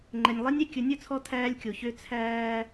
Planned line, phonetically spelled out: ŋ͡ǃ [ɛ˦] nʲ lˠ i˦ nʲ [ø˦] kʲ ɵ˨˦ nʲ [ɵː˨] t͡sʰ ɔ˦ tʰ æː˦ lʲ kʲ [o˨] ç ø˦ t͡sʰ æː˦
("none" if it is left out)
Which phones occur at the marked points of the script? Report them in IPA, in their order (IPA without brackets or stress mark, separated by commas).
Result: ɛ˨, ɛ˦, ɵ˨, o˨